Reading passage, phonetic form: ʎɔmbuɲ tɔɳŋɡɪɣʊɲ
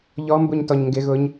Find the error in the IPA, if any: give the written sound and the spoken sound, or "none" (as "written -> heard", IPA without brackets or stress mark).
ɳ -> ɲ